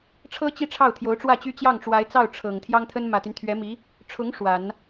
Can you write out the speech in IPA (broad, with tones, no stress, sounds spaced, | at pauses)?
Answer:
ʈ͡ʂʰ ɤ˥ t͡ɕ i˥ ʈ͡ʂʰ ɑ˥˩ ʊ̯ t̪ʰ j o˧˥ ʊ̯ ʈ͡ʂ w ä˥˩ t͡ɕ y˥ t͡ɕ j ɑ˥˩ ŋ ʈ͡ʂ w a˧˥ ɪ̯ t͡s ɑ˥˩ ʊ̯ ʈ͡ʂʰ ɤ˨˩ ŋ t̪ʰ j ɑ˥ ŋ t̪ʰ ə˥ n m ä˨˩ t̪ y˦ n t̪ʰ ɥ ɛ˧˥ m i˧˥ | ʈ͡ʂʰ ʊ˧˥ ŋ ʂ w a˨˩˦ n